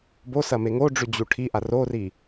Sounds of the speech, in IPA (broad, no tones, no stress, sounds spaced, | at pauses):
b o s ɐ m e ŋ o ɖ͡ʐ ʉ d͡ʑ u ʈʰ i ʔ a r o r i